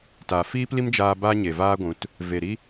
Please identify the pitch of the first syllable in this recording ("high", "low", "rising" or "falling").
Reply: low